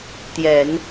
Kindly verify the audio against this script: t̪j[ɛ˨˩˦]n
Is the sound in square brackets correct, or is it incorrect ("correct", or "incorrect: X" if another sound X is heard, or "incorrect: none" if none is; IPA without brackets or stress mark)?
correct